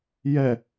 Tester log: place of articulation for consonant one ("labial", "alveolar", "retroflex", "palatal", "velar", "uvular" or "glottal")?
palatal